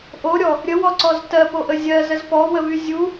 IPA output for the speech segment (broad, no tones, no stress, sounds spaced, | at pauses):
ʔ o ɾʲ ɔ | ɾʲ ə w ɔ ǀ ɔ z t ɜ p o ʔ ə zʲ ɜ z ə z p ɔ w ə v y zʲ u